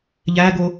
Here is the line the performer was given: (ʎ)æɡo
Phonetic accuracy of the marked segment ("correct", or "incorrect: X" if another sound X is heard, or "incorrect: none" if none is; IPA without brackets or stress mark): correct